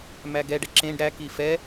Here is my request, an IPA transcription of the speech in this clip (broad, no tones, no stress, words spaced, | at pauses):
mæɡɛɖɛ ǁẽɖ ɾæki fɛ